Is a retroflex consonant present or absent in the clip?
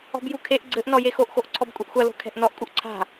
absent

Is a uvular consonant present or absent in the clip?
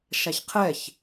present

